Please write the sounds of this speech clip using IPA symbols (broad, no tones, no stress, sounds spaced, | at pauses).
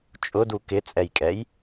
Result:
t͡ʃʼ ʊ d u k ɪ t͡sʼ ɛ j kʼ ɛ j